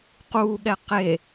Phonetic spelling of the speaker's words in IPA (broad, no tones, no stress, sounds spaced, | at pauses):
q uː ɠ ɛ q e